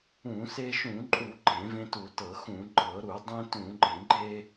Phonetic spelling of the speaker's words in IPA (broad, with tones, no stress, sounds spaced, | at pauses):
ũ˧˩˧ s e˧ ʃ ũ˧˩˧ ǃʼ u˧˩˧ ɡ͡ǃ ẽ˧˩˧ v ẽ˧ t u˧˩˧ t ɤ˧˩˧ x ũ˧˩˧ ɡ͡ǃ ɤ˧˩˧ ɾ u˧˩˧ dˤ ẽ˧ t ũ˧˩˧ ɡ͡ǃ ẽ˧˩˧ ɡ͡ǃ e˧